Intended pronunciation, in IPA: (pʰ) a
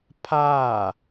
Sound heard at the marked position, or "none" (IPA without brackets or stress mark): pʰ